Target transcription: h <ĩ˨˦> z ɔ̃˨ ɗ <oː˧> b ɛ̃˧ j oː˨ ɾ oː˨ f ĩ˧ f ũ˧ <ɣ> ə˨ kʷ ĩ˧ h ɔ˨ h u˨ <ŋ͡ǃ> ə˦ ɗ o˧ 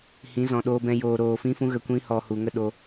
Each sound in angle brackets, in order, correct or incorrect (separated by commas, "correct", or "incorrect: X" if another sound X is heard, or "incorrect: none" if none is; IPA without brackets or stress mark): correct, correct, correct, incorrect: ŋ